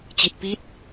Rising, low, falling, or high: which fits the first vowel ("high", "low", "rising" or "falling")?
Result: low